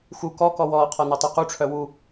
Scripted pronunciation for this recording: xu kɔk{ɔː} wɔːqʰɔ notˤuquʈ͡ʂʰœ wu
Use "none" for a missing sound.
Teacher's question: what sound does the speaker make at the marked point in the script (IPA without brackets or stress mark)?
ɔ